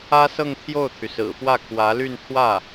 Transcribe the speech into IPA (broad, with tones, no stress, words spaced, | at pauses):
ä˥sɤ˥˧ŋ t̪ʰjo˥˩ʊ̯t̪ʰy˩sɹ̩˨˩ fwä˥˩kʰwä˧˥ly˥˧n t̪ʰwä˥˩